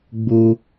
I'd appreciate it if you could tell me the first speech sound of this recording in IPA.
ɡ͡b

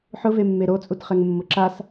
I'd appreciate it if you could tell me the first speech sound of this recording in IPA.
ħ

